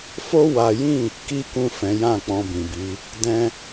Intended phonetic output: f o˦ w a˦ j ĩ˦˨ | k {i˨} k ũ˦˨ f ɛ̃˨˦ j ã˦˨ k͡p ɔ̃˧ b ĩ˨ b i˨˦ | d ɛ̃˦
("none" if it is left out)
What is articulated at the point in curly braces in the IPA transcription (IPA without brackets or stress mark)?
i˦